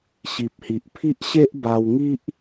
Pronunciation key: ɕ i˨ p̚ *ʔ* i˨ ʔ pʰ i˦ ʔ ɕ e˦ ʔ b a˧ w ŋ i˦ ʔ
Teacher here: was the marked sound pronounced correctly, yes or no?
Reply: no